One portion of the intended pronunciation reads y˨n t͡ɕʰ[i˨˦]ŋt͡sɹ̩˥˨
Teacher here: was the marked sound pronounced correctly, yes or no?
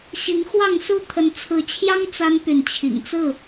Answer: no